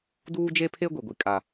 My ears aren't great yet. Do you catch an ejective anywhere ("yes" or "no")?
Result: yes